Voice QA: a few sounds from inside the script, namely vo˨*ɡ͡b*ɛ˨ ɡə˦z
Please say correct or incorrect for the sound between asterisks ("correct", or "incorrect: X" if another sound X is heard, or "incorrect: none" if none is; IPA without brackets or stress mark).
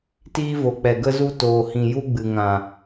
incorrect: k͡p